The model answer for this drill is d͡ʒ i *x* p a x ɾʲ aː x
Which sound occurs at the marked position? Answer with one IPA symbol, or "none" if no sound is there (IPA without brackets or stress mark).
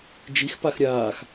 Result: x